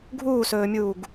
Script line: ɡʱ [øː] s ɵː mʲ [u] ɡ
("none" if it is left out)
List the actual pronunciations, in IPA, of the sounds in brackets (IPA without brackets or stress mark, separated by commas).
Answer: uː, uː